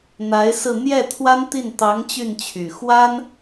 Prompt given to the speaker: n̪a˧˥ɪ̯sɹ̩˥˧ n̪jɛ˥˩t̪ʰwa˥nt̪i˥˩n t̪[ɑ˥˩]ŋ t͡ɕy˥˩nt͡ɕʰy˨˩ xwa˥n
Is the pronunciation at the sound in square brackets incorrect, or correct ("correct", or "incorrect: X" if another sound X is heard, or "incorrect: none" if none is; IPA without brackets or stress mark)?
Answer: incorrect: ɑ˧˥